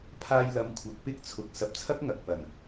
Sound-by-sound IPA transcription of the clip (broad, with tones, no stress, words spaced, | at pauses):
pʰaː˧jlɐ˨˥m kʷʰɐ˨˥k̚pɪ˥k̚t͡sʰʊ˨k̚ sɐ˨p̚t͡sʰɐ˥k̚ŋɐ˨k̚ pɐ˨˩n